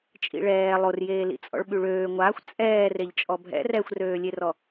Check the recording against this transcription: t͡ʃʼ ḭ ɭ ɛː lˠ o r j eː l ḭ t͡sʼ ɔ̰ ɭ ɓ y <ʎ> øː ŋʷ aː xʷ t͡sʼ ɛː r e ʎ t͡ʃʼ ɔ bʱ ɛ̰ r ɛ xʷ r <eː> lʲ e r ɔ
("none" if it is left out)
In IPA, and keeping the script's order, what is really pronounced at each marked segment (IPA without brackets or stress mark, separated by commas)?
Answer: ɭ, øː